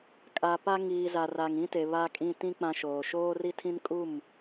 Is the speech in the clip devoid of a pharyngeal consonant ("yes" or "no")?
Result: yes